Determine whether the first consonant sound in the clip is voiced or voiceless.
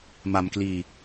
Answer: voiced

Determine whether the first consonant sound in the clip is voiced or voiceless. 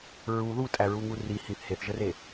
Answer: voiced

